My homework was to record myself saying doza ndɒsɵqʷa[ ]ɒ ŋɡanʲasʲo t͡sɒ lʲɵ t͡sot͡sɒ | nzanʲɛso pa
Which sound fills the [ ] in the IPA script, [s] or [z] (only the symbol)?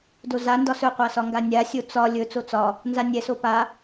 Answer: s